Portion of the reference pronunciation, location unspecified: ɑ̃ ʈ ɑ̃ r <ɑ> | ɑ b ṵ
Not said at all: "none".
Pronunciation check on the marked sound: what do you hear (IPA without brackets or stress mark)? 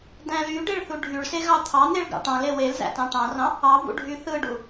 ɑ̃